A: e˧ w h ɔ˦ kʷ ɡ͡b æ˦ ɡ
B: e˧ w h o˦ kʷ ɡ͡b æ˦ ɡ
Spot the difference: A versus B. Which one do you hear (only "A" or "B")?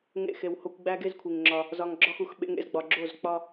B